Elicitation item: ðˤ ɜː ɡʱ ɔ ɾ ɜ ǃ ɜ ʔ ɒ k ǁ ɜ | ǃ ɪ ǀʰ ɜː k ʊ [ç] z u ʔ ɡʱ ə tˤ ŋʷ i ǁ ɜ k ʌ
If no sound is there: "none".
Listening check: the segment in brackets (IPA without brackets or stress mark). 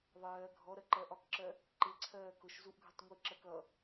ʃ